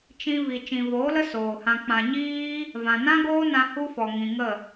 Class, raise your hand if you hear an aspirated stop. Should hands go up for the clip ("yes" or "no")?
no